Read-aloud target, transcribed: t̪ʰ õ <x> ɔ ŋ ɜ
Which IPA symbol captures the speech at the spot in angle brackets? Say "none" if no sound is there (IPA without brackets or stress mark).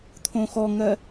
x